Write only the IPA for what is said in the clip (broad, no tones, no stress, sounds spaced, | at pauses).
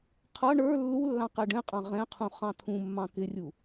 qʰ ʌ ɳ ə˞ lː u lː ɑ̃ q ɛ ɖ ɛ̃ qʼ ɑ̃ ʁ ɛ̃ qʰ ũ χ ɑ̃ t̪ʰ ũ mː ɑ̃ k ɪ rʲ u